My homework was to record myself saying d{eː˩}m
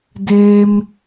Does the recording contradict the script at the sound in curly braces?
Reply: no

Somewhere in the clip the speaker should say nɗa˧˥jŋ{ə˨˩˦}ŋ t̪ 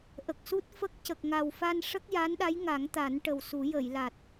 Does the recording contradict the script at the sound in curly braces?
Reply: yes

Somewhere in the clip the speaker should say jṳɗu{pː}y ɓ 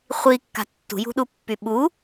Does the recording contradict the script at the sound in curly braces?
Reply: no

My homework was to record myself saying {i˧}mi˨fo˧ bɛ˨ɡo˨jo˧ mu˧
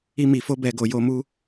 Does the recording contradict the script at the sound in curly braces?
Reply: no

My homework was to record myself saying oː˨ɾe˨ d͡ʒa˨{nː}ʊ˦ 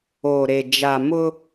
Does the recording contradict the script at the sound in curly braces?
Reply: yes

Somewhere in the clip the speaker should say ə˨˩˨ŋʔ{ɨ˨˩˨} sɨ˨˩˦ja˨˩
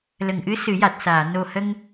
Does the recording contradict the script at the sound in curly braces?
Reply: yes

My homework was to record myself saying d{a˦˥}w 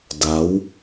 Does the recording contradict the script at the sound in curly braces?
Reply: no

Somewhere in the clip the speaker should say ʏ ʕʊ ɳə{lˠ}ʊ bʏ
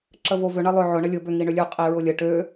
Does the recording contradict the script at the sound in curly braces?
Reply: yes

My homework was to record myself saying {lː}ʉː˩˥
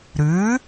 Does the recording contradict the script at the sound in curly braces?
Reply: yes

